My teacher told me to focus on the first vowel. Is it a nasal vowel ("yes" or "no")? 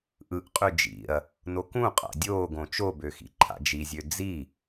no